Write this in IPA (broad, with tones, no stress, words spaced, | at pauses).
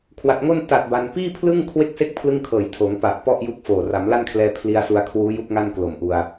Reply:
kʰwa˨˩t̚ŋo˥˩n ta˨˩t̚ ba˧n piː˥˩pʰlɯ˥˩ŋ kʰwe˥˩k̚se˥˩k̚ pʰlɯ˥˩ŋkʰɤː˨˩j tʰoː˩˦ŋpa˨˩ʔ pɔ˥˩ʔju˦˥k̚ foː˨˩ ra˩˦mla˥˩nkʰlɛː˧ pʰli˧a̯su˧a̯ kʰwuː˦˥ ju˥˩k̚ŋa˥˩nklo˨˩mʔu˧a̯